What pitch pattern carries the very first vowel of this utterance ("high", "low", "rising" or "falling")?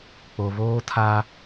low